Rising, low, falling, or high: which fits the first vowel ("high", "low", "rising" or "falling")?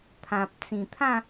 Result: low